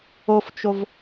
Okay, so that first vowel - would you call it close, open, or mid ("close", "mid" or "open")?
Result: mid